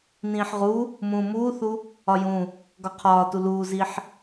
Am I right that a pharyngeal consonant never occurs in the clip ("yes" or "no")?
no